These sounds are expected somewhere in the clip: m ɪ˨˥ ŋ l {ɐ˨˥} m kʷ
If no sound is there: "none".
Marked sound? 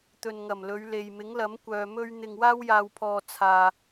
ɐ˨˥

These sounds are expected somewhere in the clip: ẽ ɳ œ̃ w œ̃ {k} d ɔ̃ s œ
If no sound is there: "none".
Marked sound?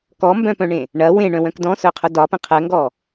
k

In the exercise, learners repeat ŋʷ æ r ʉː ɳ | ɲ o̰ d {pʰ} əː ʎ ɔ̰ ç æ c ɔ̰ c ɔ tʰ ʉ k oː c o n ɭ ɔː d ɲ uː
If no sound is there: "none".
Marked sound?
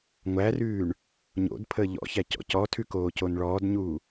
pʰ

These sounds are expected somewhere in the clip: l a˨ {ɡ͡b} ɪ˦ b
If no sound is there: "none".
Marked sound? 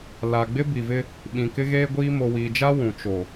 ɡ͡b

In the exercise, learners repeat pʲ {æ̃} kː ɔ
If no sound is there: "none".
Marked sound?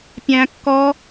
æ̃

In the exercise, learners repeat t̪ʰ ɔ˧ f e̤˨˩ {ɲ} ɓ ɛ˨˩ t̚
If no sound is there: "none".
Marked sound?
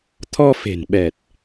n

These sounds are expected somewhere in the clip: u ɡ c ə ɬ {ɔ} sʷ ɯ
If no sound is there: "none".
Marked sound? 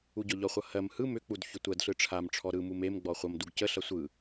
ʌ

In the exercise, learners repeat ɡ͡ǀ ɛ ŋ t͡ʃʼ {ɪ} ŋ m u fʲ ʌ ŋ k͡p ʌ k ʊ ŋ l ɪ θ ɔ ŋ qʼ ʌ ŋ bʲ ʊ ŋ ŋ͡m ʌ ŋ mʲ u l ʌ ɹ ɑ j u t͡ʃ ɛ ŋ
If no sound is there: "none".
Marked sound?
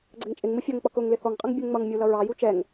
ɪ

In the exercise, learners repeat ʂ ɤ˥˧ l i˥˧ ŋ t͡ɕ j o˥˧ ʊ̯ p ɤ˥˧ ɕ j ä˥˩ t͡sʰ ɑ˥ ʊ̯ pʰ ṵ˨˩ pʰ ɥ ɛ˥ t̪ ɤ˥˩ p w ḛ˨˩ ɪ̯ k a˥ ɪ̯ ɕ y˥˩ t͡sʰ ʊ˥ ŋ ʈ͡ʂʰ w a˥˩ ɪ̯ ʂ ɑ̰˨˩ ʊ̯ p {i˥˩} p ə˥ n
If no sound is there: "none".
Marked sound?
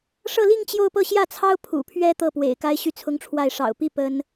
i˥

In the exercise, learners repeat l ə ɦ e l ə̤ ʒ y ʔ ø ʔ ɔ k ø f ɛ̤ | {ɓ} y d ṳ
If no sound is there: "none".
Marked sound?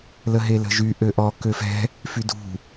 f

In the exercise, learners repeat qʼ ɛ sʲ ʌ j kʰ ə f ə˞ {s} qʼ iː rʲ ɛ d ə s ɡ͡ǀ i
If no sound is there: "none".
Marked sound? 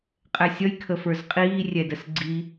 z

